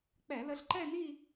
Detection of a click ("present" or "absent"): present